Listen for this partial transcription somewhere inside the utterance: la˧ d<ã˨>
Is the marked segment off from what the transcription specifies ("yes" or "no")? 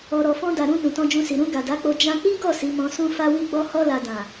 no